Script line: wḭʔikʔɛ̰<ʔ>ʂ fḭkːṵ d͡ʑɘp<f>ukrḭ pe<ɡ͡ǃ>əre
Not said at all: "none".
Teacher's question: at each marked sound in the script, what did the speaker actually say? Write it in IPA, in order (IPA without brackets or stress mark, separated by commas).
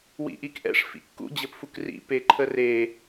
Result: none, f, ǃʰ